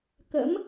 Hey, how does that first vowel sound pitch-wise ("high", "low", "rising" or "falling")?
rising